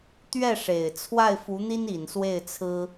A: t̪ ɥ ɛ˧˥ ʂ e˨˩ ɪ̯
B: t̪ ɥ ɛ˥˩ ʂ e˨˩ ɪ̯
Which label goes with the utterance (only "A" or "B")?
B